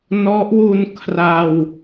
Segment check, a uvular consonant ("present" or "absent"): absent